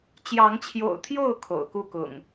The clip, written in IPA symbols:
t͡ɕjɑ˨˦ŋt͡ɕʰjo̰˨˩ʊ̯t̪ʰjo˥˨ʊ̯ kʰo̰˨˩ʊ̯ku˥˨kʊ̰˨˩ŋ

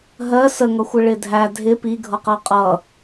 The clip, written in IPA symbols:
ɦɜ səŋʌxʷɪ ɭɪdʱæ dʱɪ pi ɡʱʌqɜqʼʌ

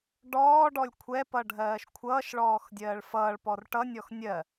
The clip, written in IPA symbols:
ɖɔːɖɔlʲ kʷʰɛpʌ ɖʱɜːʃkʷʰʌːʃɭɔːx dʲɜːɭfʌːɭpɔr ʈʌnʲɔx nʲɜ

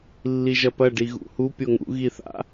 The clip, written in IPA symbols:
lːiʒɐpɐ ɖiɣṵhu pʲoŋṵ ɣiθa̰

